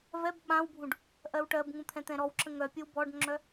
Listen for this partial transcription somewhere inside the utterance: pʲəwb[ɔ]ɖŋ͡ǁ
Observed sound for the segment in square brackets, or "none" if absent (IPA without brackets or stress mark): ɔ